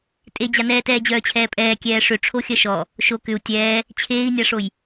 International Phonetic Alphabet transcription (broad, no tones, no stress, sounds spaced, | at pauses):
tʼ e d͡ʑ a n ɛː t ɛː d͡ʑ œː t͡ɕʰ ɛː pʼ ɛː kʲ ɛː ʂ ʏ ʈ͡ʂʰ o xʲ ɐ ʃ ɔ | ʃ o k ʏ u̯ tʲ ɛː | t͡ɕʰ eː i̯ nʲ a ʂ o j